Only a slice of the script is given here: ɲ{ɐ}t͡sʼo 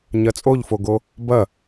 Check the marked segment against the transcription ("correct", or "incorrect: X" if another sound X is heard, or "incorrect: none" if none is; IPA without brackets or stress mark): correct